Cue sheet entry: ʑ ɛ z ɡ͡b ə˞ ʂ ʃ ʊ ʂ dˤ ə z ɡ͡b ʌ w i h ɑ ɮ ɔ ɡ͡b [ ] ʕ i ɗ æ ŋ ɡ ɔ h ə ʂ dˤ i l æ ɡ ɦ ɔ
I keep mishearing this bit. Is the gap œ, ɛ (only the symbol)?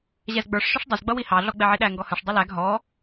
ɛ